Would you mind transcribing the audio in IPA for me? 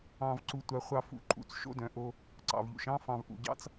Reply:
ɑ̃˧ v ǀ u˧ tʷ a˧ χʷ ɑ˧ f ṵ˨ ǃʼ ṵ˧ t͡s ʃ o̰˦ d œ̃˨ ʔ o˧ | ǀ ɑ̰˨ v ʎ ṵ˨ ʃ ɑ̃˦ f ɑ̃˨ v ʔ ṵ˨ ɟ ɑ̰˦ t͡s

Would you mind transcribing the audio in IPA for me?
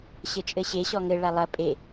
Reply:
ɕ ɘ t͡ʃʼ ɘ ɕ e ɕ ɔ ŋ ɘ ɭ a lˠ ɐ pʼ e

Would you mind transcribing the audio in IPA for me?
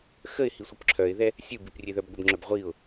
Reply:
x ə ɪ̯ h i sʷ ɯ p ǁʰ œ ɪ̯ ð ɛ | sʲ ɯ b i p rʲ e ð œ b ɡʷ ə b ŋ͡ǁ œ b ʁʷ i ʊ̯

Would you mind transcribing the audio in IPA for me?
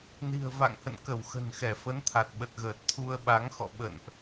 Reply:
n i̤˨˩ ə̯ v a̰˧˨ ŋ h ə̰˧˨ n k ə˧˩ w x ə̤˨˩ n x ɛ˧˩ f ə˨˦ n t̪ʰ a˨˩ t̚ ɓ ə˨˩ t̚ ɣ əː˨˩ t̚ t̪ʰ u˧ ə̯ ɓ a˨˦ ŋ x ɔ̰˧˨ ɓ ə̰˧˨ n ʔ

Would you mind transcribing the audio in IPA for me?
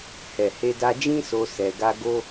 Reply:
h ɛ˨ h e˧ d a˧ d͡ʒ ĩ˦ s o˧ s ɛ˧ ɡ a˦ ɡ o˧

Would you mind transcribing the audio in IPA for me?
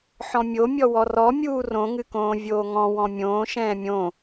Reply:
ħ ɔ̃ mʲ o mʲ ɔ w ɔ r ɔ mʲ uː r õ ŋ ɨ k õː vʲ oː ŋ ɔ̃ w ɔ̃ mʲ õː ʃ ɛ̃ː mʲ õ

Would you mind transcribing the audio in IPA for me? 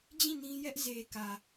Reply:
d͡ʑ ĩ˦˨ n ĩ˦ j ɛ˦ ʔ z e˨ k ä˨

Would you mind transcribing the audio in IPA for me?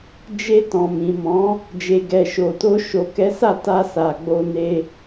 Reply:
d͡ʒ e˧ t ɔ̃˨ m ĩ˨ m ɔ̃˨˦ | d͡ʒ e˨ ɡ ɛ˨ ʃ o˨ t o˧ ʃ o˨ k ɛ˨˦ s a˦˨ t a˧ s a˨ ɡ͡b o˧ n e˧

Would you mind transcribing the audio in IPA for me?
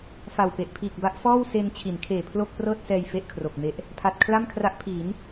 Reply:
f a˨˩ w p e˨˩ ʔ pʰ iː˨˩ k̚ b a˦˥ ʔ f ɔː˥˩ w s e˧ n t͡ɕʰ i˩˦ n kʰ eː˨˩ pʰ l o˥˩ k̚ p r ɤː˥˩ t̚ s ɛː˧ j f e˥˩ ʔ kʰ r o˨˩ k̚ m e˦˥ ʔ | pʰ a˨˩ t̚ kʰ l a˥˩ m kʰ r a˦˥ ʔ pʰ iː˩˦ n

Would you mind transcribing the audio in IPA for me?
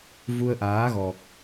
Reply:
v u˧ ə̯ ʔ aː˨˦ ɣ ɔ˨˩ k̚

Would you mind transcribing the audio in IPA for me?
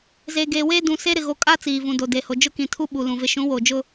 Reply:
z eː˨ ɡ eː˨ w eː˦ d ũ˨ s e˦ ɾ ɪ˨ ɣ o˨ kʼ a˦ t͡s iː˨ v ũ˨ d o˨ d e˨ h o˨ d͡ʒ ʊ˦ k ĩ˨ tʰ u˦ ɓ u˨ l ũ˨ v ɪ˨ ʃ ũ˨˦ w o˨ d͡ʒ ʊ˦

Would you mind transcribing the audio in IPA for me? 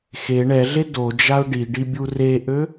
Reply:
x e ɳ ɛ ɮ e d o d͡ʒ a ʊ̯ ɖ i ɖ i bʲ u r e ʔ ø

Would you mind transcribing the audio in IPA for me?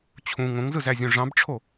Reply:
t͡ɕʰ ũ ŋ õ ŋ z ɯ z æ zʲ õ ʐ ɑ̃ b ʈ͡ʂʰ o

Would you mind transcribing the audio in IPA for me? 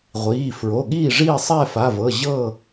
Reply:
ʁʷ iː˩˧˩ f ɹ o˩˧˩ ɠ iː˥˨ ʐ iː˥˨ sˤ ɛː˥˨ f a˩˧˩ v ɤ˩˧˩ ʑ ɤ˥˨

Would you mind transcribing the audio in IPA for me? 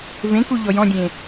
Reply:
v ẽ k u ʎ ɔ j ɔ̃ dʲ ẽ

